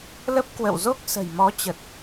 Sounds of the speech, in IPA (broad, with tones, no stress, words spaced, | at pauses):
lə˦˥p̚kwə̰˧˨wzo˦˥k̚ sə̤˨˩jmɔ˨˦t͡ɕə˨˩t̚